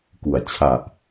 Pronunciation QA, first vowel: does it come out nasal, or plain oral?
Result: oral